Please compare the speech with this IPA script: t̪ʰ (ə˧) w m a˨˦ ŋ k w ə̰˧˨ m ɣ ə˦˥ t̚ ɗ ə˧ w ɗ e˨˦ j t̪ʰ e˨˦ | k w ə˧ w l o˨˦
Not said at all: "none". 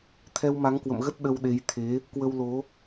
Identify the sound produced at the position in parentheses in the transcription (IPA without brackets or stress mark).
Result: ɛ˧